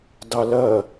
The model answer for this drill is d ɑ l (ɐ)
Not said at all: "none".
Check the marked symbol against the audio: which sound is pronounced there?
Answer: ɐ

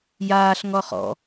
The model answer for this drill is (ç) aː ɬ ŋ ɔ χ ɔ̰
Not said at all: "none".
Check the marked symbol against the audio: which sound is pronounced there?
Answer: j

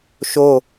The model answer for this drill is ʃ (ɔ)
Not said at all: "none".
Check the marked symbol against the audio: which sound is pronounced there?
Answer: o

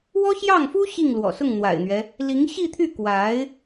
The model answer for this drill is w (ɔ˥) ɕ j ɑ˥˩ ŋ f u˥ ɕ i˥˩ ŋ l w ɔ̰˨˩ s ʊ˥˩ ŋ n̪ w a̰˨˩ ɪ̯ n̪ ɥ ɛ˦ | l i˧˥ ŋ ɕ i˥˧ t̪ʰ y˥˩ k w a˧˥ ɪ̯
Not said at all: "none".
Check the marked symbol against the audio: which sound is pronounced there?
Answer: ɔ˥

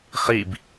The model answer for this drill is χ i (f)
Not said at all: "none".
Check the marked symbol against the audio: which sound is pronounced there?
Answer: b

